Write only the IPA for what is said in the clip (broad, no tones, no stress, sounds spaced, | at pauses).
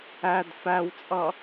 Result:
æ d f æ w t͡sʼ ʌ